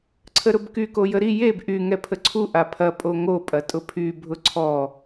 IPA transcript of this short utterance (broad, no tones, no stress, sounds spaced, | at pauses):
ǀʰ ə ɾ ʊ b k y k o j ə ɾ i j e b ʔ y ŋ ɛ pʰ ə ǀʰ u ʔ a pʰ ɐ pʼ o ŋ o pʼ ɐ tʼ ʊ pʰ y bʱ ʊ ǀʰ ɔ